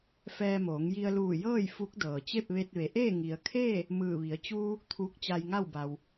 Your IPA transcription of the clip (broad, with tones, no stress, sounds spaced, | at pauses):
f ɛː˧ m oː˩˧ ŋ j i˧ ə̯ l uː˧˩ j ɤː˥˨ j f u˧˥ k̚ d ɤː˩ t͡ɕ e˥˨ p̚ ʋ e˧ t̚ ʋ e˩˧ ʔ eː˥˨ ŋ i˩ ə̯ kʰ eː˥˨ | m ɯː˧˩ ʋ i˩˧ ə̯ t͡ɕ uː˧ | t̪ʰ uː˧˥ k̚ t͡ɕ a˧ j ŋ a˥˨ w b a˩ w